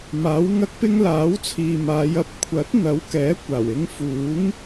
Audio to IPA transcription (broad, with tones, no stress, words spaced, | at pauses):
maː˨˥wŋɐ˥k̚pɪ˥ŋ laː˨˥wt͡sʰiː˨maː˨˧jɐ˧p̚ kʷʰɐ˨˥t̚n̪ɐ˨˥wkɛː˨˥ kʷaː˨˩wɪ˧ŋfuː˨˥ŋ